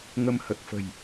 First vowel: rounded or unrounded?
unrounded